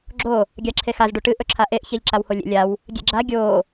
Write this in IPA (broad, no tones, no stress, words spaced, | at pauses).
ɡ͡ǁo | ɡʲaǁʰexaz ɖuʈɨ ʔɵǁʰaʔeʔ çeʎǁawholʲḛ lʲaw | ɡʲḛɡ͡ǁa ɡʲo